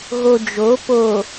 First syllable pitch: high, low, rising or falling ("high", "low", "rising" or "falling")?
low